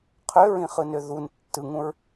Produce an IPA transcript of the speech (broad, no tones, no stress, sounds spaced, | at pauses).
qʰ ø ɹ ĩ χ ɯ n ø ð u n tː ɯ ŋ ũ ɹ